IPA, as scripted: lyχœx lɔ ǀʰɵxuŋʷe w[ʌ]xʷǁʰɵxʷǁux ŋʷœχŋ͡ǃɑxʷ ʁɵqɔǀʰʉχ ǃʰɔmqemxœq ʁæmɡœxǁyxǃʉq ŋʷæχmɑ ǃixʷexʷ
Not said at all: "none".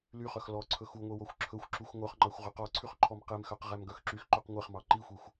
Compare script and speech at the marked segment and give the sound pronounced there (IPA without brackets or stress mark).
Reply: ɔ